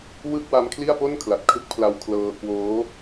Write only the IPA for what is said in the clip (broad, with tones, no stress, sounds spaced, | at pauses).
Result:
w ɯ˥˩ k̚ w a˦˥ m kʰ l i˥˩ a̯ p o˥˩ n kʰ l a˨˩ t̚ kʰ ɯ˦˥ k̚ pʰ l a˧ w kʰ l ɤː˧ k w oː˦˥